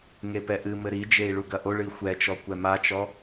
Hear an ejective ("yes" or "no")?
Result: no